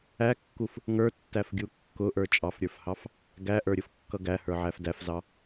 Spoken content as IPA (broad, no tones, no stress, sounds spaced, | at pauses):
æ kː u f | ŋ ə˞ tː æ f ɡʲ u kː ʊ ʔ ə˞ t͡ʃʼ ɑ f ɾʲ ə˞ f h ɑ f | ɡ æ ʔ ə˞ ɾʲ ʊ f kː ʌ ɡ æ h ə˞ ʕ æ f d æ f z ɑ